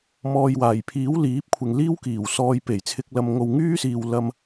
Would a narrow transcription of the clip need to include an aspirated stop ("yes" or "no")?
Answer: yes